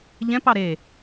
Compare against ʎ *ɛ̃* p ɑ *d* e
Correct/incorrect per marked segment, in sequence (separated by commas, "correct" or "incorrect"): correct, incorrect